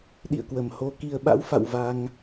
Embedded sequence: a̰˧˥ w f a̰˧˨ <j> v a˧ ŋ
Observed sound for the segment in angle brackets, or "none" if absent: w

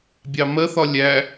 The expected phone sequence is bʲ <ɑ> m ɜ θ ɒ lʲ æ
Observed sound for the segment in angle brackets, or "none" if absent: ɑ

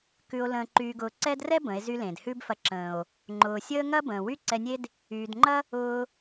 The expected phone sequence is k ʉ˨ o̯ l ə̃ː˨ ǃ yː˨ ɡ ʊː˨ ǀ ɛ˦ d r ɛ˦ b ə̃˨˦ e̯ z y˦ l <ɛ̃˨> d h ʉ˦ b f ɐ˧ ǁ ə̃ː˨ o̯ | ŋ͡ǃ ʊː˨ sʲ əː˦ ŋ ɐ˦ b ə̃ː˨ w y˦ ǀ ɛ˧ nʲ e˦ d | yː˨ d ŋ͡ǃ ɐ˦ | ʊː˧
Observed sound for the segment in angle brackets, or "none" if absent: ẽ˨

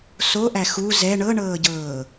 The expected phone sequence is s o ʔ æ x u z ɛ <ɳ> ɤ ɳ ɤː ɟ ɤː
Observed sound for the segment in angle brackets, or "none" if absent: ɳ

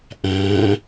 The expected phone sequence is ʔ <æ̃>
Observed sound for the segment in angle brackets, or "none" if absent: æ̃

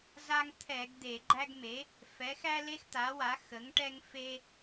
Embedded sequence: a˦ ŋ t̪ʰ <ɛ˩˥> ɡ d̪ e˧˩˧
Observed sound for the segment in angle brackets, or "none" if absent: ɛ˧˩˧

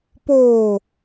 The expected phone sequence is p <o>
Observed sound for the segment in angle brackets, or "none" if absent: o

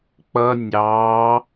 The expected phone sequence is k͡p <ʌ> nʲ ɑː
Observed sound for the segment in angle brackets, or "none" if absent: ʌ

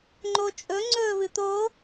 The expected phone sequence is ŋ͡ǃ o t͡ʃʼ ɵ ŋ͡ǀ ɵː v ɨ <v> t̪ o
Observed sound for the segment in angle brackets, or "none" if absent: none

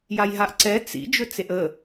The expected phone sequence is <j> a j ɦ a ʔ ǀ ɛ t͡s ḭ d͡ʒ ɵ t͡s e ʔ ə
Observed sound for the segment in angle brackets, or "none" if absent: j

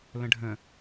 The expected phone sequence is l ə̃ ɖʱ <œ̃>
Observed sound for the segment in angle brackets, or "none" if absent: ə̃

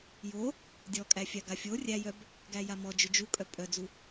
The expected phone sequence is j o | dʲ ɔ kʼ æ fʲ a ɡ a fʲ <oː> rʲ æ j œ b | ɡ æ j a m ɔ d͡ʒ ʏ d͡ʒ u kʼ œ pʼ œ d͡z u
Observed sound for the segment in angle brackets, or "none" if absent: o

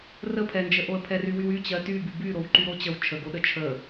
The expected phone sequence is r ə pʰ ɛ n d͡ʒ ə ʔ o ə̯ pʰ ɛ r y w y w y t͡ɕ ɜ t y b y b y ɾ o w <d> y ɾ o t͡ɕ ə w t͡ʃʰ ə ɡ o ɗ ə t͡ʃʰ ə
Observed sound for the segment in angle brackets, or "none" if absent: ǃ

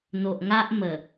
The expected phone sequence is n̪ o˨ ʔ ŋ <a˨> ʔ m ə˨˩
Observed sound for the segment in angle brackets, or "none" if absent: a˦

